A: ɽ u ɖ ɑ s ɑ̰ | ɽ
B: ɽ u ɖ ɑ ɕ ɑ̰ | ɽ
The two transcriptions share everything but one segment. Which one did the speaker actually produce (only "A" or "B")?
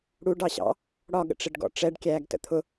B